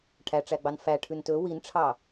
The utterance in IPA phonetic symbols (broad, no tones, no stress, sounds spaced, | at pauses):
ʈʰ æ ʈ͡ʂ æ ɡ͡b ɑ n f æ ʈʰ ʉ n t ɵ w i n ʈ͡ʂʰ ɑ